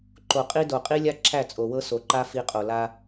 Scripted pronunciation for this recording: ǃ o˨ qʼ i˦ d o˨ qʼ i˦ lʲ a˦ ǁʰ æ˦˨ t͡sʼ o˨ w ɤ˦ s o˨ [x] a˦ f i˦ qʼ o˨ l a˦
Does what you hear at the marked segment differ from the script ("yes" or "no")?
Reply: yes